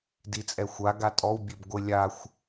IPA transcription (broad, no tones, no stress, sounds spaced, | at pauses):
d i t͡sʼ ɛ xʷ a ɡ a tʼ ɔ w bʲ e b ɡʷ ɪ lʲ a xʷ